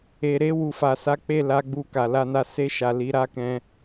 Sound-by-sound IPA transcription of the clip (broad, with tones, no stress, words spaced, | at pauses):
e˨ɾe˧ wu˨fa˨sa˨˦ k͡pe˦˨la˧ ɡ͡bu˧ka˨ la˧na˧ se˧ʃa˨ li˨˦ɾa˦kɛ̃˧